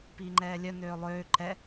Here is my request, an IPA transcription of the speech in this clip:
p iː ŋ͡ǃ ɛː lʲ œ n øː lˠ øː ǃ ɛ

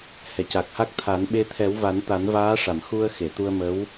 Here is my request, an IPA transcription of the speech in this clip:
h ɛ˨˩˨ c a˨˩ k̚ h a˦˥ k̚ t̪ʰ a˨˩˦ n ɓ e˧ t̪ʰ ɛ˨˩˦ w v a˨˩˦ n t̪ a˨˩˦ n v aː˧˥ ʂ a˨˩˨ m x u˧ ə̯ x e˨˩˨ t̪ u˧ ə̯ m ə˧˥ w

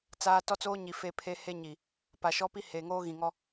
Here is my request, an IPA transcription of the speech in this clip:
t͡s aː˦ t ɔ˦ t͡s oː˦ ɲ i˨ f e˦ pʰ e˦ h e˦ ɲ i˨ | p a˨ ʃ ɔ˦ p i˦ h eː˨ ŋ oː˦ ɣ ĩ˨ ŋ ɔ˦

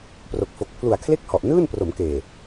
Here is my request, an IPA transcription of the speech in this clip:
p r o˨˩ k̚ f o˨˩ k̚ pʰ l u˨˩ a̯ kʰ l e˥˩ k̚ h ɔ˨˩ ʔ n ɯː˥˩ n p r o˩˦ m k eː˨˩

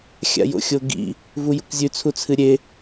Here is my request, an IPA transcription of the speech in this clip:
xʲ a̰ j o̰ xʲ o ɡ ḭ | v u j ṵ kʷ zʲ ʉ t͡sʰ u t͡sʰ ɨ ɾʲ e

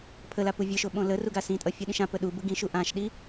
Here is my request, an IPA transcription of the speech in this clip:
pʰ ə l a p u vʲ ɯ ʃ o ɓ õ l ə r u ɡ a s ĩ tʼ ʌ fʲ ɯ ɗ ĩ ʃ ã p ə ɗ u b ɯ ɡ ĩ ʃ u ʔ ã ʃ ɗ i

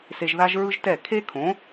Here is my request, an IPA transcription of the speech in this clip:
s e˧ ʒ ð a˥ ʒ ɹ ɯ˥ ʒ t ɛ˥˩ kʰ e˥ kʰ õ˩˥

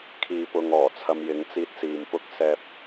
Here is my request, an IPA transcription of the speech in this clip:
kʰ iː˨ p ʊ˨ ŋ ɔː˨˩ t͡sʰ ɐ˧ m j ɪ˨˥ ŋ t͡s iː˧ t̚ s iː˨ m p ʊ˥ k̚ s ɛː˥ p̚

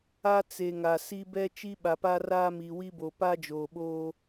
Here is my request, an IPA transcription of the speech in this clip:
a˦ t͡s e˨ ŋ a˨ s i˦ b ɛ˦ t͡ʃ i˦ ɓ a˨ p a˦ r aː˦ m i˨ w i˦ b o˨ p a˦ d͡ʒ oː˨ ɓ oː˦

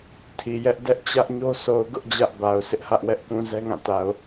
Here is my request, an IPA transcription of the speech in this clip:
tʰ i˨ j ɛ˦ ʔ d ɛ˦ ʔ t͡ɕ ä˦ ʔ ɲ o˦ sʰ o˨ ʊ̯ ɡ ʊ˦ ʔ d͡ʑ ä˦ ʔ b a˨ ʊ̯ sʰ ɪ˦ ʔ h ä˦ ʔ w ɛ˦ ʔ k ũ˨ z ɛ˦ ŋ ã˦˨ t a˨ ʊ̯

